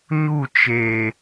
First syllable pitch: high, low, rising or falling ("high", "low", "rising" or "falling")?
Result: falling